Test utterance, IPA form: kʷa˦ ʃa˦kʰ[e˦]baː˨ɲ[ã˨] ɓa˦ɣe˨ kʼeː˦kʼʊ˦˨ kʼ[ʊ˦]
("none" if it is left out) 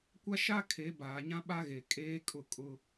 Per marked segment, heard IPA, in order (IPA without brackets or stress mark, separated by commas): e˨˦, ã˦, ʊ˦